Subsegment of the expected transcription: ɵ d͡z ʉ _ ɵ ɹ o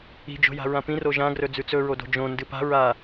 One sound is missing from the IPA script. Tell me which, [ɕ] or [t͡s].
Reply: t͡s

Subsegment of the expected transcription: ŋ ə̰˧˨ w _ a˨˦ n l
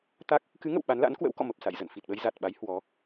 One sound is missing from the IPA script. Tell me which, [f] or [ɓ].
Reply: ɓ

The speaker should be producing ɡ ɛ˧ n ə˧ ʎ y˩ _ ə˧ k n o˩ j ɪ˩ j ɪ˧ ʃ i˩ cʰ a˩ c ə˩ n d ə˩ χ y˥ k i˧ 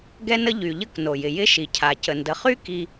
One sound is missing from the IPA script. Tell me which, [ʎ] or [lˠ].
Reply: ʎ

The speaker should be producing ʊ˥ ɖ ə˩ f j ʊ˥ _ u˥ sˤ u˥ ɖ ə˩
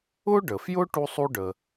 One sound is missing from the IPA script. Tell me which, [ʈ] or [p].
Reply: ʈ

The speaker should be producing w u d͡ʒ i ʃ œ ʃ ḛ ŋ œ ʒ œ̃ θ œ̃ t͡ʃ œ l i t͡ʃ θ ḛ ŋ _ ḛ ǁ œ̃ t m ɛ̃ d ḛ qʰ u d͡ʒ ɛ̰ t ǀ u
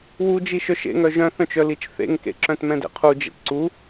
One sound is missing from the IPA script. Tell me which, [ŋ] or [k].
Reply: k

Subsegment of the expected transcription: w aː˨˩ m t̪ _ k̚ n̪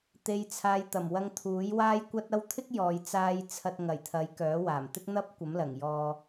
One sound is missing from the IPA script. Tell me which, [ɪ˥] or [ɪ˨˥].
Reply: ɪ˥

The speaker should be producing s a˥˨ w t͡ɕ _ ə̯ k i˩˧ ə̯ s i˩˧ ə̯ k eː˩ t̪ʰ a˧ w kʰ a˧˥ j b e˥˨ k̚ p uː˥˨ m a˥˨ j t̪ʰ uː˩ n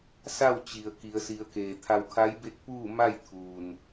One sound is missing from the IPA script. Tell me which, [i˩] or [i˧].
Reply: i˩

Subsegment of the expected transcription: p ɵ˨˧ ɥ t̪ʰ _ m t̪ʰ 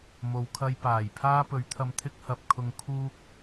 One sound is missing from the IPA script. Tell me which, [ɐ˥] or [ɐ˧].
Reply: ɐ˧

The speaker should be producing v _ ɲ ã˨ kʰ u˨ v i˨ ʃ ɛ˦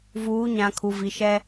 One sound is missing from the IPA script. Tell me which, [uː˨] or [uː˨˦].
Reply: uː˨˦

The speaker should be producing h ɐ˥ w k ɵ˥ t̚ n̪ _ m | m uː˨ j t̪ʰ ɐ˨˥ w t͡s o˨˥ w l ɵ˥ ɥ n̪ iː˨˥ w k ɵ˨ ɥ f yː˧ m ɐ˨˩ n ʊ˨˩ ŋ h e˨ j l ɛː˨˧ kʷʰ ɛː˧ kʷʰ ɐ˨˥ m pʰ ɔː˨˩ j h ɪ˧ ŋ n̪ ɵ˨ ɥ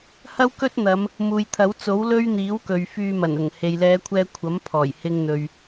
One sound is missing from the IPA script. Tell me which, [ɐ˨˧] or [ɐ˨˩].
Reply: ɐ˨˧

